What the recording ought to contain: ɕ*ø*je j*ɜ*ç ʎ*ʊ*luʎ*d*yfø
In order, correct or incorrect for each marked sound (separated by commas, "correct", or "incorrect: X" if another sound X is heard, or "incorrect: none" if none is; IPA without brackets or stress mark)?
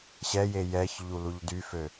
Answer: incorrect: ɛ, incorrect: ɛ, incorrect: u, correct